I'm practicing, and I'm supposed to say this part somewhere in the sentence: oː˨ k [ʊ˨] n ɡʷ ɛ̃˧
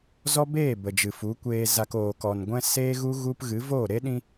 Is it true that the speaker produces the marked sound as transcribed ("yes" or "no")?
no